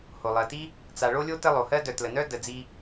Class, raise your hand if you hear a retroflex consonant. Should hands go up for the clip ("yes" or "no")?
yes